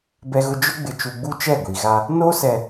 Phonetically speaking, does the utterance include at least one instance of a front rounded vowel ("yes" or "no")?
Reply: no